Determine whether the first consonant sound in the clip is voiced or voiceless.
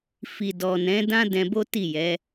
voiceless